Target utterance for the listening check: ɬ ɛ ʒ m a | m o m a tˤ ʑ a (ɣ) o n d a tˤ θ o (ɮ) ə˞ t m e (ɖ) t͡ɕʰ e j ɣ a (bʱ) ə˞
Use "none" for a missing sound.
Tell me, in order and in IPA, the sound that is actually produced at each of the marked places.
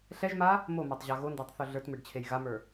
ɣ, ɮ, ɖ, m

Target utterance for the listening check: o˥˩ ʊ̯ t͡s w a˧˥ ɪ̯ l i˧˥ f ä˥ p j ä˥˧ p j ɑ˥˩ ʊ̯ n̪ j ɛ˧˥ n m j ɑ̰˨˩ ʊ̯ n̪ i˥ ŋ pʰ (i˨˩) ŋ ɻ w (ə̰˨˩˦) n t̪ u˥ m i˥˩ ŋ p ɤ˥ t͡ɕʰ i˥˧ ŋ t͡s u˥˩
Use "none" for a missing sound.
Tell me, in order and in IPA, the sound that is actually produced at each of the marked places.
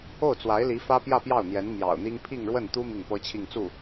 i˥˧, ə˥˩

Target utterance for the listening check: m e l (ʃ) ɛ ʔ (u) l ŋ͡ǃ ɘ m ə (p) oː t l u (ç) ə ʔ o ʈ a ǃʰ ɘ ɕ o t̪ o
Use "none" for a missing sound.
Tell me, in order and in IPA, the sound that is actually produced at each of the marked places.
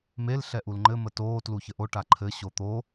ɬ, u, t, ç

